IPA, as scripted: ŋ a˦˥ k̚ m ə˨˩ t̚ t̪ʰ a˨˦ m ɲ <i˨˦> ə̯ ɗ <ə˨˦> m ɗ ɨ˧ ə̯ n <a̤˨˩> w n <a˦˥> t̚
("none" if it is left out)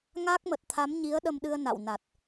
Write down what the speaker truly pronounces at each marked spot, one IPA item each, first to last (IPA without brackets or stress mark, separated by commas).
i˨˦, ə˧, a̰˧˨, a˨˩